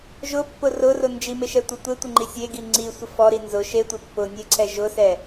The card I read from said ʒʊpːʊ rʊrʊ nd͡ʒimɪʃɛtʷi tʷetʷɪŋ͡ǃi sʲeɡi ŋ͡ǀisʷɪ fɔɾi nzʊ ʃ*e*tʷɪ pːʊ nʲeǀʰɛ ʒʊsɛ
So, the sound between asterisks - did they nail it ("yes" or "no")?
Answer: yes